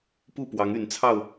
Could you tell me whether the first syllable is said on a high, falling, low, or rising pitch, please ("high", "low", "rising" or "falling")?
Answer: falling